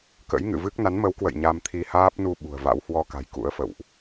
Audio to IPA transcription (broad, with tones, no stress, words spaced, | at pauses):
kə̰˧˥jŋɨ̰˧˨vɨ˦˥k̚ na˨˦nmə˨˦wkwə̰˧˨j ɲa˧mt̪ʰi˧ haː˦˥p̚nu˧ ɓṳ˨˩ə̯va̰˧˥w hwɔ˧ka̤˨˩j kṵ˧˥ə̯fə̰˧˨wʔ